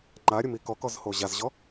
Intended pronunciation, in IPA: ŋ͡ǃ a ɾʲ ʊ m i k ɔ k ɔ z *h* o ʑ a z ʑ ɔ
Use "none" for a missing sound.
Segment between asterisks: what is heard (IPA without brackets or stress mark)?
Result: h